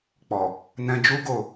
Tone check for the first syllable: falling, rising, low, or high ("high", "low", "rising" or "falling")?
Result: low